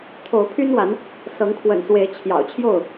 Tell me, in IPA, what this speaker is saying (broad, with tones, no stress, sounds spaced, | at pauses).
t̪ʰ o˨˦ ʊ̯ pʰ y˦ n w a˨˦ n | s ɤ˨˦ ŋ kʰ w ə̰˨˩ n s w e˨˦ ɪ̯ t͡ɕʰ j ɑ̰˨˩ ʊ̯ t͡ɕʰ j o˥˨ ʊ̯